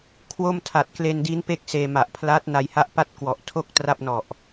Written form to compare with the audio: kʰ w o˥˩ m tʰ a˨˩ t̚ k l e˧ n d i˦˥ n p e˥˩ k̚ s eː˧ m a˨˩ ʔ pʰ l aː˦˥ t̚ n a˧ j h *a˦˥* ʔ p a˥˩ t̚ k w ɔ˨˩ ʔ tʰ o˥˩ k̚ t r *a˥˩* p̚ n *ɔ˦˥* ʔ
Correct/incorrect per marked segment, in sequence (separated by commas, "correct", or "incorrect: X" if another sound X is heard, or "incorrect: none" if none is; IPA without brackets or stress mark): correct, correct, incorrect: ɔ˨˩